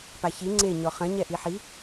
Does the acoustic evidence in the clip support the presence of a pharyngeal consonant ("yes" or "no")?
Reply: yes